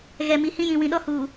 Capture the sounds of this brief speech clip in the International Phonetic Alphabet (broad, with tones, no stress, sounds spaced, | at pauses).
ɣ ɛ˨ m i˨ h ĩ˦ j ĩ˨ w ĩ˨ ɗ ɔ˦ h uː˨